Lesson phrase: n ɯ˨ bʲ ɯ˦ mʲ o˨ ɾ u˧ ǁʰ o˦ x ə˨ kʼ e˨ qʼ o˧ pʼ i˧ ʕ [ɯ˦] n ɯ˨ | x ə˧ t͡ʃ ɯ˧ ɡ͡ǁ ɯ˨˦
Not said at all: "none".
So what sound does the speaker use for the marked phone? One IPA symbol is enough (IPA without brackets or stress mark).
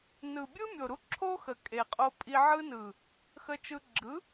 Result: ɯ˧